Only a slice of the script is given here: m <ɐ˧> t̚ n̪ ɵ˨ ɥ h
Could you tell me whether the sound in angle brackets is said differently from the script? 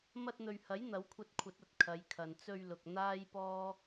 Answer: no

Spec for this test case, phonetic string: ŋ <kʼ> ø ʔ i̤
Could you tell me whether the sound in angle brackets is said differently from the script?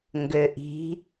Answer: yes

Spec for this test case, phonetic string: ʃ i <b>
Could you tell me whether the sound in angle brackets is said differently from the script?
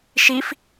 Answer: yes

